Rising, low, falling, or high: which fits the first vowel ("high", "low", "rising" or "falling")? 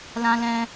high